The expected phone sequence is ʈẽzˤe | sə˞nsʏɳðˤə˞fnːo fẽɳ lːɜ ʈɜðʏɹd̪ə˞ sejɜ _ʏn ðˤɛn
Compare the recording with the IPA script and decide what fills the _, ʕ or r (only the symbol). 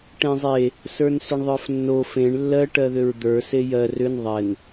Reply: r